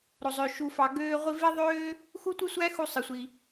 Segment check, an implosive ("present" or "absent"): absent